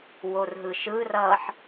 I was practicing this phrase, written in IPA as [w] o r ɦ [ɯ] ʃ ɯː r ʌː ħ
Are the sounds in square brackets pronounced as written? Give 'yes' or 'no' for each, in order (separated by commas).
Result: yes, yes